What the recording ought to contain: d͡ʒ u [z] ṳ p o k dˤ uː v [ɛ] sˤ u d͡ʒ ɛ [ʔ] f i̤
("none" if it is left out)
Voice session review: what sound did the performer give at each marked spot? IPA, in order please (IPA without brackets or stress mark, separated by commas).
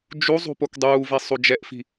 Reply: zˤ, e, ʔ